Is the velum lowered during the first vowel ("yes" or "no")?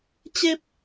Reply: no